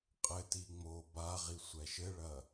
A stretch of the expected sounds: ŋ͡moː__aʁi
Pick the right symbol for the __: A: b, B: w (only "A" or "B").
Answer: A